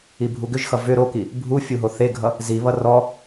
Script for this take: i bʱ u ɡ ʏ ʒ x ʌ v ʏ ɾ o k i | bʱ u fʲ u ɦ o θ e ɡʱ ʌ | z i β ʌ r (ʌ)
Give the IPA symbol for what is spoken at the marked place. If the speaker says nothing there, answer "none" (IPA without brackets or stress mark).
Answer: ɔ